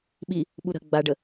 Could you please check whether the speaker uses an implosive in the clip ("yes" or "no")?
yes